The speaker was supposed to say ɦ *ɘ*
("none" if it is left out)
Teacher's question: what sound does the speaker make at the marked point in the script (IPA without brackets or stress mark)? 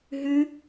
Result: ʉ